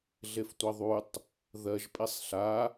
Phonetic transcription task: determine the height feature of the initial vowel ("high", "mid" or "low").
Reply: mid